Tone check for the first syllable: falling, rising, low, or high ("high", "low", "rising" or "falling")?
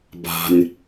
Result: low